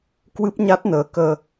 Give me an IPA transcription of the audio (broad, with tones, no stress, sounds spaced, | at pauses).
k w ɨ˦˥ p̚ ɲ a˦˥ t̚ n əː˨˦ k əː˧